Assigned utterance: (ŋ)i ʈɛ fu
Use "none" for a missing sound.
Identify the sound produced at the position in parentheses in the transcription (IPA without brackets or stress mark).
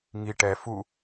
ŋ